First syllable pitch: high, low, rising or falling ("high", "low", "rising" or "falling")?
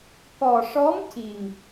low